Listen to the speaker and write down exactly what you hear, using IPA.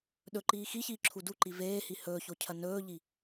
ɗɵǃiː xiçiːǁʰu duǃi veːhi hɵːçocʰɐ nɵːʎi

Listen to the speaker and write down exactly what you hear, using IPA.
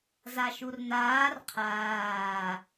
zaʃurnaːr qʰaː

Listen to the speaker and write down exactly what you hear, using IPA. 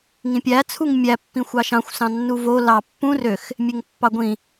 ŋĩpʲæ t͡sʰuŋmʲæ pːĩxʷɑʃɑ̃xʷ sɑ̃nːuvo lɑ pːũ røx | mʲeŋpːɑɡʷĩ

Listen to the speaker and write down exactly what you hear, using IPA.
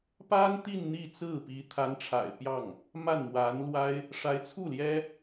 pa˥nt̪i˥˧n n̪i˥˧t͡sɹ̩˥˩pi˧˥ t̪ʰa˧˥nʈ͡ʂʰa̰˨˩ɪ̯pjɑ˥˩ŋ | ma˥˩nmwa˧˥nlwa˥ɪ̯ | ʂa˧˥ɪ̯t͡sʰu˥˩ ljɛ˥

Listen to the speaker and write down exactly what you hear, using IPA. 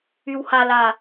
ywhala

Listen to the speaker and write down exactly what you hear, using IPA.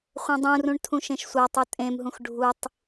χʷẽdˤũrũɳ tʰũʃẽʃsʷatˤu tʼẽmɦũx ɖʱutˤ

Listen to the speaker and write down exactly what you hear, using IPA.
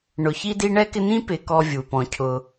ɳʊ˨ çi˦di˦ɳɛ˥kɪ˦ n̪ĩ˦pɪ˨kɔ˨ vʲu˩ pɔ̃˩cʰʊ˩

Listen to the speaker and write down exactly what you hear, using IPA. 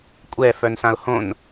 kʷʼɛ fœnsãʊ̯hõn

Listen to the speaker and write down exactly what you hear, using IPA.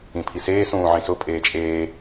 ĩpʰiseː sũːʕĩsʊ pʼeːt͡ʃʼeː

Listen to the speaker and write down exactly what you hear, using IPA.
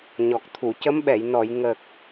ɲɔ˨˩k̚t̪ʰu˨˩˨cə˧˥mɓɛ˨˩˨j nɔ˨˩˨j ŋə˨˩k̚

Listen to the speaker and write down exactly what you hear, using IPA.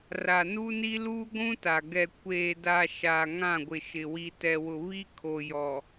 ra˨nu˦ni˦ luː˦ɡʷũ˦ta˨ ɡɛ˨ kʷeː˨da˨ ʃa˨ŋã˦˨ɡʷɪ˨ ʃɪ˨ wi˨tɛ˨wʊ˨ βi˦kʰo˨jɔ˨

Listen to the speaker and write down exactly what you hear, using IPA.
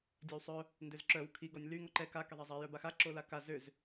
dʲewsˤœ | ndøzǁœw kʰi ɡɔnʲly ŋɔǃɛ ka kɛðˤazˤa jœbaxa ǁolaka zøz

